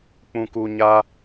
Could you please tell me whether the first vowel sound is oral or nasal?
nasal